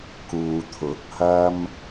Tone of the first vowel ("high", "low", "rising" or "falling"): low